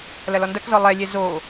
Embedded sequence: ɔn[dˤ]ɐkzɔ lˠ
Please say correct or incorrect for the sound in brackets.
incorrect